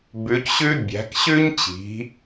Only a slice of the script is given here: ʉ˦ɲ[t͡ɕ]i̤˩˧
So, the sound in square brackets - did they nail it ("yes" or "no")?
yes